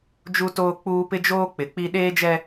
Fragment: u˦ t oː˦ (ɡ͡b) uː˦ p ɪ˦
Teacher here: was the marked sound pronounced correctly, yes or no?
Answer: no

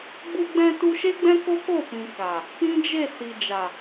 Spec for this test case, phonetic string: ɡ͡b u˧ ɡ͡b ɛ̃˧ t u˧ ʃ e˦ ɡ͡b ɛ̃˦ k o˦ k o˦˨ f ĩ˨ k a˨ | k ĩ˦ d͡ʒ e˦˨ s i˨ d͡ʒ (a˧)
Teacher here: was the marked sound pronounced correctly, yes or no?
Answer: no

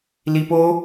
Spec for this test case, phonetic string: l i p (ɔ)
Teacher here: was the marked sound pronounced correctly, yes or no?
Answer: no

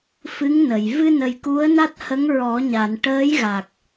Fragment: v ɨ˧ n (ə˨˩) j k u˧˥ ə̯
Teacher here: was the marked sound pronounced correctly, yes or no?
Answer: yes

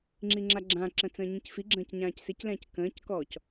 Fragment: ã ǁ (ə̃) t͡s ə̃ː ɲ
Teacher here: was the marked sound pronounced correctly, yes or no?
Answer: yes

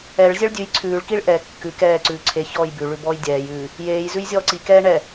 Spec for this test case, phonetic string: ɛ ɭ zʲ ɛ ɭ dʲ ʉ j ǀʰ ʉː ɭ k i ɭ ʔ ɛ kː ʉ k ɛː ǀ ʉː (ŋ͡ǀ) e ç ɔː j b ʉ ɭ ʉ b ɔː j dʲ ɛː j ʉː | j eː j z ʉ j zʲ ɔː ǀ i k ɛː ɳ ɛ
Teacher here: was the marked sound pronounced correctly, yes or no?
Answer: no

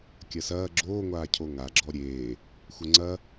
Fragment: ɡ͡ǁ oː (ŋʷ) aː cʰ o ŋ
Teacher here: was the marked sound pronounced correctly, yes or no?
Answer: yes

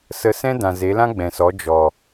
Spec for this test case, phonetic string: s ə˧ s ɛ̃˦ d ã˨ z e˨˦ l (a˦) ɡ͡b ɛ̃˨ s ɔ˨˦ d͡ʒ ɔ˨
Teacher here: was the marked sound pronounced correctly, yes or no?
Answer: no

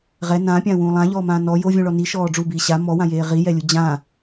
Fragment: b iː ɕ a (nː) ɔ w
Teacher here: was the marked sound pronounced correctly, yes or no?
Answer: no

